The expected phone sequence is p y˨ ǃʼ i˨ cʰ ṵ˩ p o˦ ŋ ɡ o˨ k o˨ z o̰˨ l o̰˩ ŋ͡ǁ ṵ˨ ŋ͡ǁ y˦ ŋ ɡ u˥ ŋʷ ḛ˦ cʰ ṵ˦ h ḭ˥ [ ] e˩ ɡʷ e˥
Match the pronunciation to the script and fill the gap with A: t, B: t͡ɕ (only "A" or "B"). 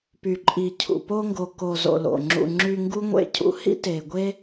A